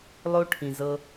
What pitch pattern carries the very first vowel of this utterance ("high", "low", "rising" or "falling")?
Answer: high